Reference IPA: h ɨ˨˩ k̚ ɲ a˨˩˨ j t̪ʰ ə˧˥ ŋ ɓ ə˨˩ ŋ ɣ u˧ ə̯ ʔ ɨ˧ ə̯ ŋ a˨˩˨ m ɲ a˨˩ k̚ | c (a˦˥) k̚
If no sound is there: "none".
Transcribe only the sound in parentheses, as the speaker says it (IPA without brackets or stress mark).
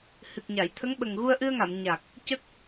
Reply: ə˦˥